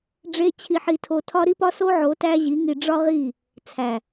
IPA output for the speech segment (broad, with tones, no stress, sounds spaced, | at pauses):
ɖ͡ʐ e˦ t͡ɕʰ i˧ ħ i˧ tʰ o˧ tʰ ɒ˦ ɾ i˦ p ɒ˦ s o˦ ʕ o˨˦ t æ˦ ʑ i˨˦ ŋ i˧ ɖ͡ʐ ɒ˦ ʁ i˦˨ | t͡sʰ æ˨